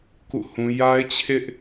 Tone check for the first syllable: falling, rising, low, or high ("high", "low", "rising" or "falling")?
falling